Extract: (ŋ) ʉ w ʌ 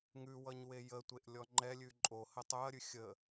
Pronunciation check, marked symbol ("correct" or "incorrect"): correct